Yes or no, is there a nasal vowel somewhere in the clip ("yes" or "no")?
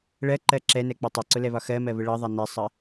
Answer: no